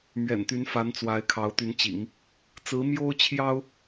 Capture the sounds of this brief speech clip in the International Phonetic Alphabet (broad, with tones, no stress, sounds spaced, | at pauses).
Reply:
m ɥ ɛ̰˨˩ n t̪ y˧˥ n f a˧˥ n t͡s w a˧˥ ɪ̯ kʰ ɑ˧˥ ʊ̯ t̪ y˧˥ n t͡ɕ ḭ˨˩˦ ŋ | t͡s ɹ̩˧˥ m j o˥ ʊ̯ t͡ɕʰ j ɑ˥ ʊ̯